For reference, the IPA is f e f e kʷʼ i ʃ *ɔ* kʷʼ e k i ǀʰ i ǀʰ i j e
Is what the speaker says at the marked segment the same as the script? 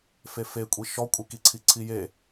yes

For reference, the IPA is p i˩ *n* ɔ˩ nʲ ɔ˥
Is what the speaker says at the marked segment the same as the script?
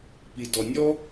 no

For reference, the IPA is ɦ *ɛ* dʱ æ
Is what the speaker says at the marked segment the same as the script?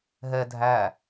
yes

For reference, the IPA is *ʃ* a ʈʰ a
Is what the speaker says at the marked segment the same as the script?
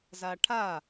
no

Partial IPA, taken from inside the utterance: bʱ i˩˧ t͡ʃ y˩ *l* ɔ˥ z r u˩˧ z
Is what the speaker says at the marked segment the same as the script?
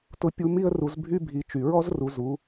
no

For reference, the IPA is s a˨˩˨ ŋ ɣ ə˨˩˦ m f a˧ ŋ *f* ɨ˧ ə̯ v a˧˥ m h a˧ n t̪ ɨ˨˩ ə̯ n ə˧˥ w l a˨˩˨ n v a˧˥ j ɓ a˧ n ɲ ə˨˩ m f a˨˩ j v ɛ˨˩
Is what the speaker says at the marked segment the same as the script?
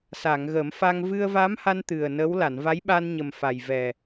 no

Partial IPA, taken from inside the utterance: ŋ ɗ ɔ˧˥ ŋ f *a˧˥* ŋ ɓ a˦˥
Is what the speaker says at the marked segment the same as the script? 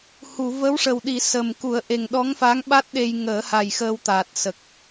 yes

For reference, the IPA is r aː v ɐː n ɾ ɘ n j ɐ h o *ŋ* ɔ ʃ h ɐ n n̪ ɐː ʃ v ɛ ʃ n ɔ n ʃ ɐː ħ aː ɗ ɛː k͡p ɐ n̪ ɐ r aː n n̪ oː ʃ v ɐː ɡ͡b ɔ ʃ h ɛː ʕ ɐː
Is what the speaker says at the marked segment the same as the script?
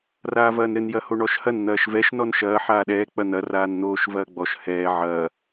no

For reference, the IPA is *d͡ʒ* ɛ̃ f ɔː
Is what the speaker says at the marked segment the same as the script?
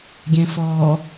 no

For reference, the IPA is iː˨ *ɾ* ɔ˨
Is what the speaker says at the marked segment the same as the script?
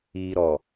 yes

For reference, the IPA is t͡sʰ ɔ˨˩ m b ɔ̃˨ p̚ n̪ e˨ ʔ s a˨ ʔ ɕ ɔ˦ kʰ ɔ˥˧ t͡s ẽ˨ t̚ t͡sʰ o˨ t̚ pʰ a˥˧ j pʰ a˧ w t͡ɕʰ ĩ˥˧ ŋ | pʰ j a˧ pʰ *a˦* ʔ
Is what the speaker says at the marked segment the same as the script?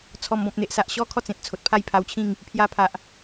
no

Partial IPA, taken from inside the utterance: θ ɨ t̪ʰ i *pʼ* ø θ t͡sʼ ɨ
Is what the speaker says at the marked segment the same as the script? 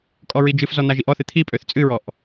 yes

